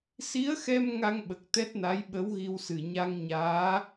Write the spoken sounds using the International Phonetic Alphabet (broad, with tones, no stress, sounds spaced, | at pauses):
s i˧˥ ə̯ x ɛ˧ m ŋ a˧ ŋ ɓ ə˨˩ k̚ t̪ ɛ˦˥ t̚ n a˧˥ j ɓ ə˧˥ w ɣ i˧ w s ɨ˨˩ ɲ a˧ ŋ ɲ aː˧˥